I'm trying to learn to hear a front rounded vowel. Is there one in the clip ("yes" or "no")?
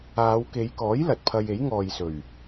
no